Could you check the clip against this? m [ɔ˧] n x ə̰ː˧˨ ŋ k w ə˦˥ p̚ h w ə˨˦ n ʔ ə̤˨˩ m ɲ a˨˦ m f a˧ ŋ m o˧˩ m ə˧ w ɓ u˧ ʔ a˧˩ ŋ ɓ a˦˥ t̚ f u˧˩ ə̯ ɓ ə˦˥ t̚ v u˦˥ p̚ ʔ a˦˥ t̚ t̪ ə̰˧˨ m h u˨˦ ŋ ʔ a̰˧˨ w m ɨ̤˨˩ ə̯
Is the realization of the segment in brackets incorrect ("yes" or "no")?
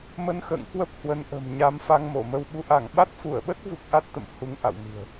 yes